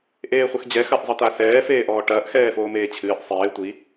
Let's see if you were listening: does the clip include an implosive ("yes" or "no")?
no